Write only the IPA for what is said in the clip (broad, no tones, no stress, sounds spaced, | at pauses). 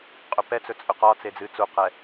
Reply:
qʼ œ p ɛ t͡s ɵ t͡sʼ ɵ q ɒ t͡s e d͡z ɨ t͡s u q ɛ